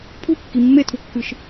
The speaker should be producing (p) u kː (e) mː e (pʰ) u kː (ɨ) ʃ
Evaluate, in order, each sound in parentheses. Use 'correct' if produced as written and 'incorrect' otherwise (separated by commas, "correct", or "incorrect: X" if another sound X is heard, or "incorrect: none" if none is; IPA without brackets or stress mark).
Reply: incorrect: pʰ, incorrect: i, incorrect: tʰ, correct